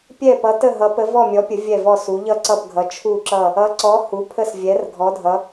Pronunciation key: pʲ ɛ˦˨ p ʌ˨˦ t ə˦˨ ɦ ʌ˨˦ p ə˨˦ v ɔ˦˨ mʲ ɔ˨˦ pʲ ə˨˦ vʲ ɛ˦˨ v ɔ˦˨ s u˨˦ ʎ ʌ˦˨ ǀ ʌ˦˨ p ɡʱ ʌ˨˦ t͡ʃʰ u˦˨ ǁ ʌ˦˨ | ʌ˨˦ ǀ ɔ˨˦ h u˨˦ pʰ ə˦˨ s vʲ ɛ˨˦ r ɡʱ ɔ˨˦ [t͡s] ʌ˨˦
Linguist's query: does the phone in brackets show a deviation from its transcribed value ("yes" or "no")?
yes